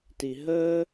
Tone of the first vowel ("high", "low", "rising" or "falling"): low